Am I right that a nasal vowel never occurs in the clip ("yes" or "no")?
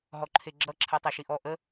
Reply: yes